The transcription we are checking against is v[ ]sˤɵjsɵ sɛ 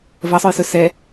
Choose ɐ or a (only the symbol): ɐ